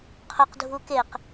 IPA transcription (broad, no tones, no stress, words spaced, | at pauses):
qʰʊq dʱukeq